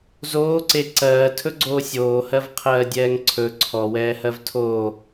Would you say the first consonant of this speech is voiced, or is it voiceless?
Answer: voiced